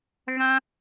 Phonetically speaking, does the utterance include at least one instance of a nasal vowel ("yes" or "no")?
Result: yes